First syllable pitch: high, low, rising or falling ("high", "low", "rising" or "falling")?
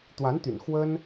rising